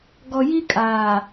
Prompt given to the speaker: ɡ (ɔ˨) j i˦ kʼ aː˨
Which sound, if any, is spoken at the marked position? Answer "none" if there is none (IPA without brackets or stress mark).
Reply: ɔ˨